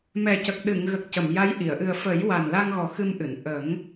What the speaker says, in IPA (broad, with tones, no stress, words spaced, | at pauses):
mɛ˨˩cə˨˩k̚ ɗɨ˨˩˨ŋɣə˨˩k̚ cə˨˩˨mja˧˥jʔi˨˩˨ə̯ ʔɨ˨˩ə̯fə˨˩˦j wa˨˩nla˧ŋɣɔ˨˩ xɨ˧mʔɨ˨˩˨n ʔə˨˩˦ŋ